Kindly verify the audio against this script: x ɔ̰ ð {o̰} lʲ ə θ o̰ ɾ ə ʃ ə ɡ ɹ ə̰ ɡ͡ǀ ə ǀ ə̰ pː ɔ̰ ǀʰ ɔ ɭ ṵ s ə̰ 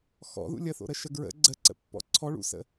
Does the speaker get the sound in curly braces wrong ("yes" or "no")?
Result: yes